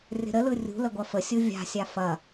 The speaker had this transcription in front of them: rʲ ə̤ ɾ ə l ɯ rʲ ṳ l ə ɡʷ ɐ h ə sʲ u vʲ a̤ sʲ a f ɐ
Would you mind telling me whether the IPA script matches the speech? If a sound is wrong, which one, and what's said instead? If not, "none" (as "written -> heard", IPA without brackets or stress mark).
h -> f